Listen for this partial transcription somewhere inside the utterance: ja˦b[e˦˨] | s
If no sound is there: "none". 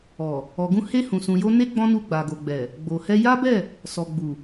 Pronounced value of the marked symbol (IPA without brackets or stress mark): ɛ˦˨